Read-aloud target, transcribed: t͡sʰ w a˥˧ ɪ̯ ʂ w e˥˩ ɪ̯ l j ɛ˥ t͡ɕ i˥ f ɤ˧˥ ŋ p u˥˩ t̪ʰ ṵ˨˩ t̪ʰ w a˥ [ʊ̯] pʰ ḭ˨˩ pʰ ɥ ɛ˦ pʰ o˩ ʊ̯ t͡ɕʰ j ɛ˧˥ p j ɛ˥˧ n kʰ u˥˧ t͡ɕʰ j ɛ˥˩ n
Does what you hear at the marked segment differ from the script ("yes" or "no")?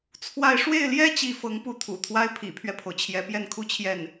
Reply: yes